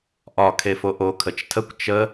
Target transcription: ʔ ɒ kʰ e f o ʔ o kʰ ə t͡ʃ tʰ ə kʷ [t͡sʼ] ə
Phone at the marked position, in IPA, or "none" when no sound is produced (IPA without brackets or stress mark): t͡ʃ